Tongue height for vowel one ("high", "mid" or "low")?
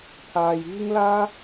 low